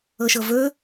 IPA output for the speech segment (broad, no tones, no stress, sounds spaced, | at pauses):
ɤ ʃ ɤ v ɵ